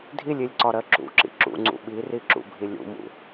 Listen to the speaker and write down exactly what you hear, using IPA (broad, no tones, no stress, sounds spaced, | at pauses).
dʱ i lʲ i lʲ ǀ ɒ ɾ ɜ ǁ ṵ ǁ ḭ ǁ ṵ ŋ͡ǀ ṵ ɓ i r i ǁ ṵ bʱ i lʲ ṵ m ṵ